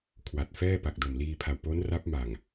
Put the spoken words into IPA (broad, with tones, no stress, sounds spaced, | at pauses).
kʰ w a˨˩ t̚ f ɛː˥˩ p a˨˩ k̚ d o˨˩ m l iː˧ pʰ a˨˩ w p o˦˥ n r a˦˥ p̚ m a˨˩ ŋ